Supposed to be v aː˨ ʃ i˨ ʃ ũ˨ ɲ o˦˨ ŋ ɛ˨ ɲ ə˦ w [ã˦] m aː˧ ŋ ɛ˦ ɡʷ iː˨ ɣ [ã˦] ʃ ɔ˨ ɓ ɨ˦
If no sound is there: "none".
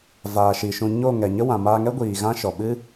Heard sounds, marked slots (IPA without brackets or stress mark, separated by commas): ã˨, ã˦